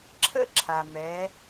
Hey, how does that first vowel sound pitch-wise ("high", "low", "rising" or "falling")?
high